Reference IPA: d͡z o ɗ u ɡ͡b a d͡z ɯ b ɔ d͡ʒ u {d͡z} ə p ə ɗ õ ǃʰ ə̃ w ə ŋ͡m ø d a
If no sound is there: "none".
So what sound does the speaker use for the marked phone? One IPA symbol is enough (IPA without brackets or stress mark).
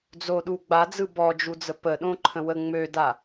d͡z